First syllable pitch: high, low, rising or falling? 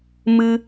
high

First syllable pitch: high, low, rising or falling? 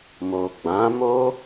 low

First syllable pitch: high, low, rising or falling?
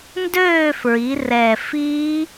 falling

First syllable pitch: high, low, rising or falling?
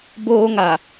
high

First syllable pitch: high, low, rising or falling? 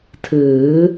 rising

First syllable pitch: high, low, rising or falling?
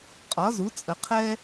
rising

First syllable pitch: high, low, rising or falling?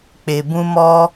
low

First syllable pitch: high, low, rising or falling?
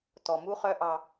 low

